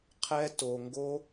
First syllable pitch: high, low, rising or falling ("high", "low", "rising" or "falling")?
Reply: high